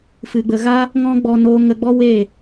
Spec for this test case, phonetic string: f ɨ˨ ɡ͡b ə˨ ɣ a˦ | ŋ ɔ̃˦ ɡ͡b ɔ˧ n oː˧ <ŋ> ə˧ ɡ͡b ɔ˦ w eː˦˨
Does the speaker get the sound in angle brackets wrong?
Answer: no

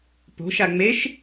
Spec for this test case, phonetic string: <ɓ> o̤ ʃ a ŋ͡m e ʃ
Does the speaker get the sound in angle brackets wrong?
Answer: yes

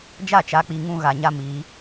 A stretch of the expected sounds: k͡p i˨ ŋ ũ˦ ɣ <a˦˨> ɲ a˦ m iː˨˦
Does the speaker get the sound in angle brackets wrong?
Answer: yes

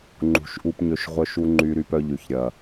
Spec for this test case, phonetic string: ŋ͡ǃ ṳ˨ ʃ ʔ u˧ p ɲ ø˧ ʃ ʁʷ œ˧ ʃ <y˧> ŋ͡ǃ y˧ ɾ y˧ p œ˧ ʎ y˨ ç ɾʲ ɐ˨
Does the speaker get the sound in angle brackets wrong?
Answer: yes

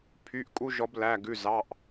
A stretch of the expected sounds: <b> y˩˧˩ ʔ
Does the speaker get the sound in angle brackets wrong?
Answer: yes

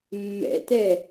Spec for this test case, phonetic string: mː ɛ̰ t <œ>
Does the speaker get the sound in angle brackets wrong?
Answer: yes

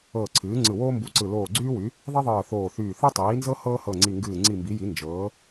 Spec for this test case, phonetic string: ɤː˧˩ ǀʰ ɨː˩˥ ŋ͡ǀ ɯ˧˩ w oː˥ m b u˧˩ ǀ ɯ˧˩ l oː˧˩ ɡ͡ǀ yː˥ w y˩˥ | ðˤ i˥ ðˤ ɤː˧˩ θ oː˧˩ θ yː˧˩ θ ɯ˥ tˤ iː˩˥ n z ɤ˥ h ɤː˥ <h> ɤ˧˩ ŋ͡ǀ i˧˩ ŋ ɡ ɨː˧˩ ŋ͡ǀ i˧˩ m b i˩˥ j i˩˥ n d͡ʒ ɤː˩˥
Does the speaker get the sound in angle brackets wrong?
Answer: no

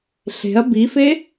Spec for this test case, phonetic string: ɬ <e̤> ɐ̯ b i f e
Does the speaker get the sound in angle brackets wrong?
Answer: no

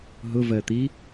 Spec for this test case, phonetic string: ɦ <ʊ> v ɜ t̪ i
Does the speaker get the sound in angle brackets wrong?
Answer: no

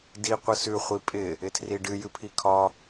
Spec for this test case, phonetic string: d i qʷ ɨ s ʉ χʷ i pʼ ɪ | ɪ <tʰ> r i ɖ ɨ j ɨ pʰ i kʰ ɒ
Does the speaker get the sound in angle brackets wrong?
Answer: no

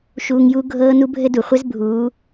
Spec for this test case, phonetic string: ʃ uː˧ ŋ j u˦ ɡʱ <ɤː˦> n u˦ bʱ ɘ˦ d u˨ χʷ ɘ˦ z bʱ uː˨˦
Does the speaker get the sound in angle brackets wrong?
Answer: no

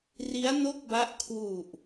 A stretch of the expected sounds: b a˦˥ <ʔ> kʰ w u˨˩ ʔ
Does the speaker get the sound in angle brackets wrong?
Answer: no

